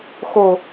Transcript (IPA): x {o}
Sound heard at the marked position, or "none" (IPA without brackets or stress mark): o